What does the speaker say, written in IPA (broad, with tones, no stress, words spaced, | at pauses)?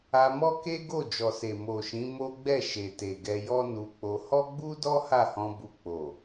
a˧mɔ˦ke˦ ɡo˦˨ d͡ʒɔ˨se˨ mo˨ʃĩ˨˦ mo˦ɡ͡bɛ˦˨ ʃe˨te˨ ɡɛ˧ jɔ˦nu˧k͡po˧ hɔ˦ɡ͡bu˦dɔ˦ ha˦˨hɔ̃˧bu˧ k͡po˨